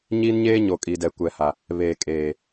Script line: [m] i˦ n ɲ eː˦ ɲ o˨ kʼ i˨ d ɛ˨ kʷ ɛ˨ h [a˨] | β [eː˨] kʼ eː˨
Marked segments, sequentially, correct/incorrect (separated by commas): incorrect, correct, correct